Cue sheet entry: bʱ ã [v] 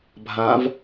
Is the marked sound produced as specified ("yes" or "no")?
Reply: yes